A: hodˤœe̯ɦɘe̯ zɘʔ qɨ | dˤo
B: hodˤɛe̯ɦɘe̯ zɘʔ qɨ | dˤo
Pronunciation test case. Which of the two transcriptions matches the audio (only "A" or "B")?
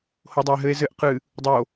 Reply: A